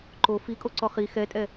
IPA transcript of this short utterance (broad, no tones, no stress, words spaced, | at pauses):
ǃo fikʼoǀɔ χi xɛtʼɛ